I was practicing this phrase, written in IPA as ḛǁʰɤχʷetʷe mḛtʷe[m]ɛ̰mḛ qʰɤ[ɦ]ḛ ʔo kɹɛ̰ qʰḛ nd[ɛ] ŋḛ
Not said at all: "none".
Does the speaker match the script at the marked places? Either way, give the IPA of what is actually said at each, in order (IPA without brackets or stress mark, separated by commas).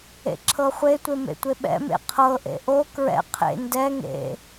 ɓ, ʔ, ɛ